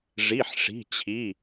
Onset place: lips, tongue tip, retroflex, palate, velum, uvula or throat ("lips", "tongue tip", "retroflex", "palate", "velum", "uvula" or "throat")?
retroflex